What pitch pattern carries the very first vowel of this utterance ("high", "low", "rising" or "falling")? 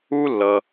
high